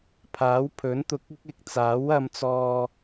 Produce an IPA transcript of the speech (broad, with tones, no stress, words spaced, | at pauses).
pʰaː˨˥w pʰɵ˨˥nt̪ʊ˧k̚ɪ˥k̚ɪ˨˥k̚ t͡saː˨˥wɐ˧mt͡sɔː˧